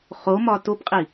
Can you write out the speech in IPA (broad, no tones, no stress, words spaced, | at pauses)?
χomɒ topqʼi